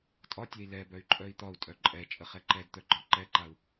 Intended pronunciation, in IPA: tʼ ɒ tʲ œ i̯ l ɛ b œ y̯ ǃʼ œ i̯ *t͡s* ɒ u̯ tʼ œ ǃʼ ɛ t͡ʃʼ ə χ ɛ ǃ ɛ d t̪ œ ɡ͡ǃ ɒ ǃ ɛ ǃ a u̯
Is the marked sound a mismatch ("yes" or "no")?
yes